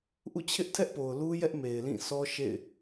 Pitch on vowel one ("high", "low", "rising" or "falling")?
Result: falling